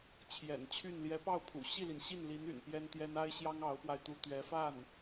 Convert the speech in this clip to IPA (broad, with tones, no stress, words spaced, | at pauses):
t͡ɕʰjɛ̰˨˩nt͡ɕʰy˥˩n ljɛ˧˥pɑ˥˩ʊ̯pʰṵ˨˩ ɕi˥˩li˩nɕi˥˩nli˧˥n y̰˨˩npjɛ˥nt̪jɛ˥n a˥ɪ̯ɕjɑ˥ŋ ɑ˧˥ʊ̯pwa˧ɪ̯ t̪u˥ t̪ɥɛ˧˥fa˥˩n